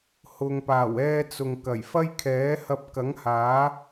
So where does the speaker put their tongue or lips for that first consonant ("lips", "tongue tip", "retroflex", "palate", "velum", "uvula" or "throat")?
throat